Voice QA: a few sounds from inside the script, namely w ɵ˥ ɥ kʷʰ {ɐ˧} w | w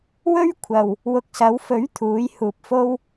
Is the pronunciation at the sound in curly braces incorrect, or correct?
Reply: incorrect